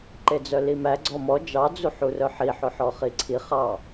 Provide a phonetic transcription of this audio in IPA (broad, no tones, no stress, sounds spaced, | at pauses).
ǃ e d͡z œ l i m æ ɡ͡ǀ ɔ m ɔ d͡ʒ ɑ d͡z u ħ u r œ ħ i ħ ɵ ħ ɔ χ i ǀʰ i χ ɑ